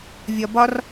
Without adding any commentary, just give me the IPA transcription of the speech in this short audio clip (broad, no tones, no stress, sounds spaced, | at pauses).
vʲ ɒ b ɒ r